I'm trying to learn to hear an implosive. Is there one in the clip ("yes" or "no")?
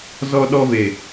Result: yes